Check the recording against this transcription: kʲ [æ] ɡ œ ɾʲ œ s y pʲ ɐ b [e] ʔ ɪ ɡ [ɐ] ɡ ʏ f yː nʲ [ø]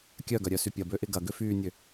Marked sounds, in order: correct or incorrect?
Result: incorrect: œ, incorrect: ø, correct, correct

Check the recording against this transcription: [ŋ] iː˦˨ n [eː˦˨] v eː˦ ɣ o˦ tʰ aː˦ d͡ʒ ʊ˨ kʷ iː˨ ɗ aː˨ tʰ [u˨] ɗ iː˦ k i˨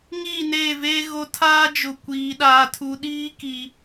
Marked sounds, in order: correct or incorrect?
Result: correct, correct, correct

